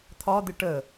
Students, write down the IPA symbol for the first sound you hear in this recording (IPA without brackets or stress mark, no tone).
t̪ʰ